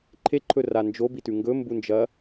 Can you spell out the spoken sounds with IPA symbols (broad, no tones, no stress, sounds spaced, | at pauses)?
ǃʰ e ǃʰ ɵ r a n d͡ʒ o b i t ʉ ŋ ɡ ɵ m b u n d͡ʒ ɐ